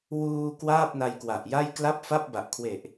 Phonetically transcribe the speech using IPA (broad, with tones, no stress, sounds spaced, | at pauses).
w uː˧ k w aː˥˩ p̚ n a˦˥ j k w a˨˩ ʔ j a˥˩ j k l a˥˩ p̚ f a˥˩ p̚ b a˨˩ ʔ kʰ w e˨˩ ʔ